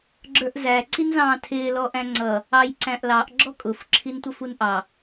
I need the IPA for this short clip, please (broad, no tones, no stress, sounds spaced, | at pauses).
ɡ͡ǁ ə˞ ʔ z æ ǀ i n z ɑ̃ː tʰ ɪː l ɔ ʔ æ̃ ŋ͡ǀ ʌ | ɑ j ǀ æ̃ ʔ l ɑ ʔ ɡ͡ǁ ɔ kʼ ʊ f ǁʰ i n tʷ ʌ f u n ʔ ɑ